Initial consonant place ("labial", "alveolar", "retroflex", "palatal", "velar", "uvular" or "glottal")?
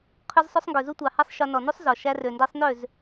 uvular